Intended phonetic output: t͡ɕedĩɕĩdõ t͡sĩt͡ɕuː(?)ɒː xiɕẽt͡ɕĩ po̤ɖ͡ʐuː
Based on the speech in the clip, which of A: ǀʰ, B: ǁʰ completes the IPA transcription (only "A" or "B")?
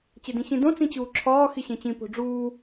B